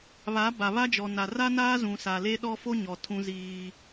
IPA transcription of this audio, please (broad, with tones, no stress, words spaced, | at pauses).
βa˨˦ba˨βa˦d͡ʒɔ˨ na˨ ra˦naː˦ zũ˨sa˨le˦ɗɔ˦ fo˦ɲɔ˨ tʰũ˦ziː˦